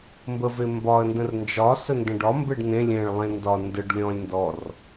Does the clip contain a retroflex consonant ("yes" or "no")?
yes